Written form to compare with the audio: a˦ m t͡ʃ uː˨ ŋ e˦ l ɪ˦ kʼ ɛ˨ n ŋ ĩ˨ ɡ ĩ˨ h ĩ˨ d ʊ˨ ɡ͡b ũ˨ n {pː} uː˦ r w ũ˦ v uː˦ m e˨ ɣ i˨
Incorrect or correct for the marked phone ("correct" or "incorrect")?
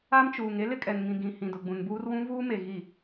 incorrect